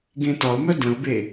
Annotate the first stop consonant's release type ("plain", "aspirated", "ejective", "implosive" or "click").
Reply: plain